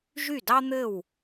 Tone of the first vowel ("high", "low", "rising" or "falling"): falling